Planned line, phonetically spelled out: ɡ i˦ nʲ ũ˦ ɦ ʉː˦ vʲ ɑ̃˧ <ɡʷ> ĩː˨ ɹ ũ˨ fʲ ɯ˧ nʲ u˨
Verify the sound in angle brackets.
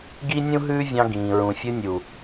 incorrect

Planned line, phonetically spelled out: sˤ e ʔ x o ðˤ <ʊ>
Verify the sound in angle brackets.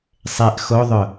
correct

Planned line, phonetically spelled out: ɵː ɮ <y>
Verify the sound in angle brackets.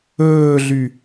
correct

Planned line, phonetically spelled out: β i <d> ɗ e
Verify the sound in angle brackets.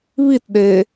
incorrect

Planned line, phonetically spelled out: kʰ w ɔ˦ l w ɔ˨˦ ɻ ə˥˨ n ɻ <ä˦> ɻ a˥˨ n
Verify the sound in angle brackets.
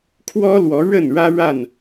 correct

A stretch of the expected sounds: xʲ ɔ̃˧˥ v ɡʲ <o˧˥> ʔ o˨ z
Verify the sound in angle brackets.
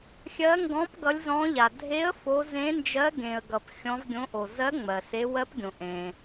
incorrect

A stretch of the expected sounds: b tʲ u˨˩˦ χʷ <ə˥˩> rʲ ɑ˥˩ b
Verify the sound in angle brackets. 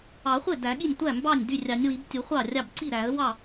incorrect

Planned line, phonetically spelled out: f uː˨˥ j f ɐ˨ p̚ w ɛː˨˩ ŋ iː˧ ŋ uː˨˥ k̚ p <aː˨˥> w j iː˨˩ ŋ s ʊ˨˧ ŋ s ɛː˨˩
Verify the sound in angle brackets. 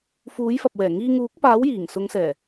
correct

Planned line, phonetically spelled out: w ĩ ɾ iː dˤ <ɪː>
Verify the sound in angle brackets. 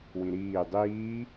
incorrect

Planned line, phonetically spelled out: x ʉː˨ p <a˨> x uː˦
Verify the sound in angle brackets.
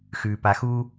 correct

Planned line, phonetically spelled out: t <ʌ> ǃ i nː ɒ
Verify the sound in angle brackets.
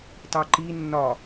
incorrect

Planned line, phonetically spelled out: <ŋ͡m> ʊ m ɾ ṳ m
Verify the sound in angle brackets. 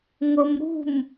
incorrect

